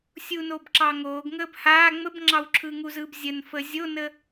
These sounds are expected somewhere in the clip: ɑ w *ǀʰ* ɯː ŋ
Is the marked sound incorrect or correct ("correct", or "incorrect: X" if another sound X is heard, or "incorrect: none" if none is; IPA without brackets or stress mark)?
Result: incorrect: ǁʰ